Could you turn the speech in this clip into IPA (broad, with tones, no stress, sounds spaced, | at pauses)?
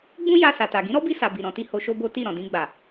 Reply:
ɡ͡b ũ˦ j a˧ s a˨ t a˨ ɡ ĩ˨˦ ɾ ɔ˦ b i˧ s a˨ b i˨ ɾ ɔ̃˧ t i˦ h o˧ ʃ o˦ b o˦ t i˦˨ ɾ ɔ̃˨ d ĩ˧ ɡ͡b a˨